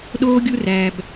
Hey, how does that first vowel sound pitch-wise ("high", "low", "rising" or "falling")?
high